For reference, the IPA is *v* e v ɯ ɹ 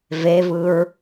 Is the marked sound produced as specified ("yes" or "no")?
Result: yes